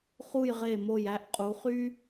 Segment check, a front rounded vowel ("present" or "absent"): present